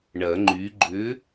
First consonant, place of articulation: retroflex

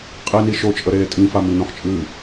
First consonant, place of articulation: uvular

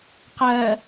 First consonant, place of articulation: uvular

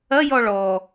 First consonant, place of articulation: palatal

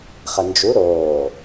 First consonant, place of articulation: uvular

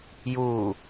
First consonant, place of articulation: palatal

